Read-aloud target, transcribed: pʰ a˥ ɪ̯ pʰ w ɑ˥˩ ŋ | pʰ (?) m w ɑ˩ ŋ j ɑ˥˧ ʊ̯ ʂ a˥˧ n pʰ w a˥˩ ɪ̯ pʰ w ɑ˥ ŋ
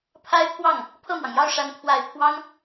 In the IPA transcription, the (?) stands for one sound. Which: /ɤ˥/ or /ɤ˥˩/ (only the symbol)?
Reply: ɤ˥˩